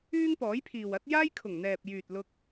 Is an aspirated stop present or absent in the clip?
present